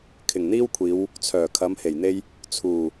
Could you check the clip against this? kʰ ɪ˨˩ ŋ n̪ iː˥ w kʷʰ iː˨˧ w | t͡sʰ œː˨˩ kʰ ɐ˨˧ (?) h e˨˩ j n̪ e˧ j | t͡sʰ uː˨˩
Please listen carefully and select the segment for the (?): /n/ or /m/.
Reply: m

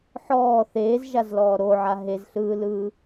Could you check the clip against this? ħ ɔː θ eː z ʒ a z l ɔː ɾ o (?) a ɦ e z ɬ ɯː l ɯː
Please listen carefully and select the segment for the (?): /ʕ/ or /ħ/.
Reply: ʕ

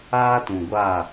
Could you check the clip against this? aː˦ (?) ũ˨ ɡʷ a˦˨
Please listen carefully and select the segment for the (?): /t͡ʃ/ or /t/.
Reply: t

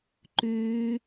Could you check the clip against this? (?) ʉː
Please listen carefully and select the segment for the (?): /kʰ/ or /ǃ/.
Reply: ǃ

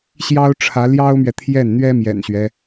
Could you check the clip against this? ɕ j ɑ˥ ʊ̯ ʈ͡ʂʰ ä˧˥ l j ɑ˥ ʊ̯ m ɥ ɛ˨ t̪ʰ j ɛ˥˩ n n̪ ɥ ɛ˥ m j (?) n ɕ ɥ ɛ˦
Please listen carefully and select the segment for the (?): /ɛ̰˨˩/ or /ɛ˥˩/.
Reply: ɛ̰˨˩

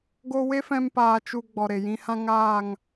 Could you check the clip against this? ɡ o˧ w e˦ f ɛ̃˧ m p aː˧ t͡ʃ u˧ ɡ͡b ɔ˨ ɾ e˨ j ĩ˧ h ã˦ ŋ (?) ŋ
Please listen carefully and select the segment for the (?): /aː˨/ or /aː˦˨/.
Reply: aː˦˨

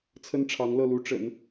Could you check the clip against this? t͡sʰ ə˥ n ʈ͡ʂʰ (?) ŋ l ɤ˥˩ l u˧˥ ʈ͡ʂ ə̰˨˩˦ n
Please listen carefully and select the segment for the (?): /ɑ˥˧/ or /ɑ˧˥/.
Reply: ɑ˧˥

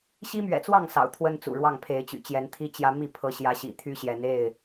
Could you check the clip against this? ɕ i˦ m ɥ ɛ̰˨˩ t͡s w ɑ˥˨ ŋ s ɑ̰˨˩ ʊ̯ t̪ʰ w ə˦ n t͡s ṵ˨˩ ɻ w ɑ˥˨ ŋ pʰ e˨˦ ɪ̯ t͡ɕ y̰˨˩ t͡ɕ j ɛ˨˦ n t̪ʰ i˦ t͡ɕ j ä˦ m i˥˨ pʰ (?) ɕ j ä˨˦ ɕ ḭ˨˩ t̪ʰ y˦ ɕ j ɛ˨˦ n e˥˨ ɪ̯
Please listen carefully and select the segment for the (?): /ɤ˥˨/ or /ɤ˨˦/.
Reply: ɤ˨˦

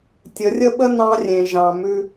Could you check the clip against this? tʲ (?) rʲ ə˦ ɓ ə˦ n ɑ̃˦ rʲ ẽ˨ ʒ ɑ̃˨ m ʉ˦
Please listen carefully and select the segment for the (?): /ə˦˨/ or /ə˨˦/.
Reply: ə˨˦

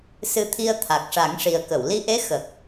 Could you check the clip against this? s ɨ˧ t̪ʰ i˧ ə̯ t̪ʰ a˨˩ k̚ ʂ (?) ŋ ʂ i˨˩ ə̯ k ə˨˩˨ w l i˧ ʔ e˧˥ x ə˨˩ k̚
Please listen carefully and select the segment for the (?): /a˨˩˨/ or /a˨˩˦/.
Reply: a˨˩˦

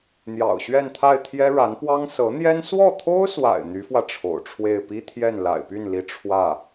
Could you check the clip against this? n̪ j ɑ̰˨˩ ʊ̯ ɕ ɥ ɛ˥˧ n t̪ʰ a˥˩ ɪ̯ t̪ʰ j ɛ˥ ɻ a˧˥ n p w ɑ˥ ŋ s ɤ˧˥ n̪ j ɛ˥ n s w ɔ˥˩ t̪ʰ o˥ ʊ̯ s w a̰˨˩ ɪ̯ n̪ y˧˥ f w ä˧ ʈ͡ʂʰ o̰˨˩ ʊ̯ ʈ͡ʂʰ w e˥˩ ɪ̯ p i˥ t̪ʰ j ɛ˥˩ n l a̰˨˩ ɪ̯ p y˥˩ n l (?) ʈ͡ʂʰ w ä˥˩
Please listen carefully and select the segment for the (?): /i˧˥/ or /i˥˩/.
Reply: i˧˥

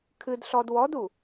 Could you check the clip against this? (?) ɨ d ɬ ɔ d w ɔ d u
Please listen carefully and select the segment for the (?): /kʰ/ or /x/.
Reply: kʰ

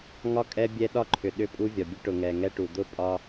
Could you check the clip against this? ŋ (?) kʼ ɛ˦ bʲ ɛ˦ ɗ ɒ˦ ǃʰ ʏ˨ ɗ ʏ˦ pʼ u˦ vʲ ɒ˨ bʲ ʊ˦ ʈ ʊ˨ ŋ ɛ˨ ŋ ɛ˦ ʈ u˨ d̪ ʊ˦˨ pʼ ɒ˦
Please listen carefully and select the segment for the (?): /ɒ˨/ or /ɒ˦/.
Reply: ɒ˦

